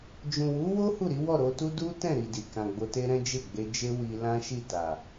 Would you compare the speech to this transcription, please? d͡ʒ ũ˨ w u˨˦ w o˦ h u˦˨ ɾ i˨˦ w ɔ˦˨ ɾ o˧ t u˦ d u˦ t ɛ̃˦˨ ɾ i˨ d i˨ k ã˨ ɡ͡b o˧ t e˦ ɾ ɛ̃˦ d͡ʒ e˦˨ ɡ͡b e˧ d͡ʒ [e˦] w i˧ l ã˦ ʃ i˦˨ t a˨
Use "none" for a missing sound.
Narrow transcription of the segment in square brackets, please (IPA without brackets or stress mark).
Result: e˦